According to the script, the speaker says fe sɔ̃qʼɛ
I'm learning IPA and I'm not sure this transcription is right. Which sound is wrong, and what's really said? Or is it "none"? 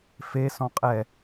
none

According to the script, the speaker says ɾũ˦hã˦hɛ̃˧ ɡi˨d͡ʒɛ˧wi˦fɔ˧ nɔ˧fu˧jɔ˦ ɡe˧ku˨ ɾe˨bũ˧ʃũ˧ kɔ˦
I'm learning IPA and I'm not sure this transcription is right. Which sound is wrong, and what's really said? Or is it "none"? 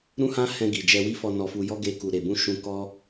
none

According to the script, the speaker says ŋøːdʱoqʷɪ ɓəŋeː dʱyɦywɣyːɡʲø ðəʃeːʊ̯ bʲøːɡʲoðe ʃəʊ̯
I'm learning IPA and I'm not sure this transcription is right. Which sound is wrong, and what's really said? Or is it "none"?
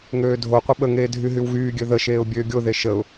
none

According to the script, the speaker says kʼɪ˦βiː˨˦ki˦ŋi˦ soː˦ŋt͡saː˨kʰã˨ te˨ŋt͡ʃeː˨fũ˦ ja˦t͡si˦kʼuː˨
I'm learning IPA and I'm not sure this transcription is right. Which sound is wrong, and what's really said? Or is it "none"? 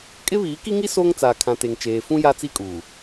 none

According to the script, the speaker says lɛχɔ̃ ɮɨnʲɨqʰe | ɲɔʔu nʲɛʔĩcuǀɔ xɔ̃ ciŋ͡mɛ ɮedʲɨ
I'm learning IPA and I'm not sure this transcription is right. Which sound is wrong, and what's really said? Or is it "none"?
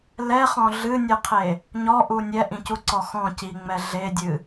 none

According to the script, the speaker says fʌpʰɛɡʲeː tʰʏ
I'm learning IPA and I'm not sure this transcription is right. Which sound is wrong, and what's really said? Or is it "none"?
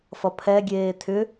none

